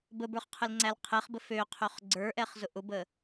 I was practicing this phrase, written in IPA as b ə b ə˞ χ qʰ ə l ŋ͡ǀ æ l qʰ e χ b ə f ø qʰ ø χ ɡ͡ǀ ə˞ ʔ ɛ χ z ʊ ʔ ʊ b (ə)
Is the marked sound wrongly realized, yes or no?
no